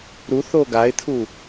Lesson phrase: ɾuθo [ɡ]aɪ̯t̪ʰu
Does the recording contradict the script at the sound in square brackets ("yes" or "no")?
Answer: no